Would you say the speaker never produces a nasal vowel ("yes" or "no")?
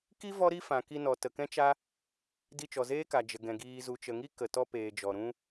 no